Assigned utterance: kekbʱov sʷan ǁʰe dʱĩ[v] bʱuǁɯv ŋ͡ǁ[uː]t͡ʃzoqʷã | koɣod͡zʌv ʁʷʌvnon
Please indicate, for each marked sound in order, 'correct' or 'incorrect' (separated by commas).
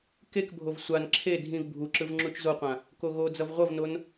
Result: correct, incorrect